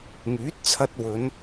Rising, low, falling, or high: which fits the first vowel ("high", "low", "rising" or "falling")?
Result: rising